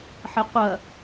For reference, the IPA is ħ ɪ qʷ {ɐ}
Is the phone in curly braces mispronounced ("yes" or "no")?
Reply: no